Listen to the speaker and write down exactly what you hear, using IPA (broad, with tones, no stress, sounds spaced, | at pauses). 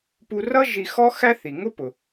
p u˧ r ʌ˥ ʒ i˧ x ɔ˥ x æ˥ θ i˩ ŋ ʊ˥ p ʊ˩